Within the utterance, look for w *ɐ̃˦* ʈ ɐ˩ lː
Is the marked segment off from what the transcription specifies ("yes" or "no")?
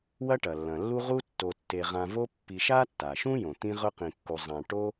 yes